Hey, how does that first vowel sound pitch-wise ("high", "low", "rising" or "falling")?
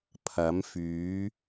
rising